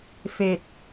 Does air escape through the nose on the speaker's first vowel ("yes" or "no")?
no